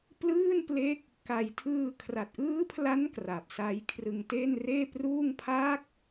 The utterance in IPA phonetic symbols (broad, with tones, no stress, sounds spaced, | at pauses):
p l ɯː˥˩ n p l e˦˥ k̚ | k a˧ j tʰ ɯː˧ kʰ r a˨˩ t̚ ʔ ɯː˦˥ pʰ l a˦˥ n k r a˨˩ p̚ s a˦˥ j kʰ r ɯ˧ ŋ t e˥˩ n r eː˥˩ p r uː˥˩ ŋ pʰ aː˦˥ k̚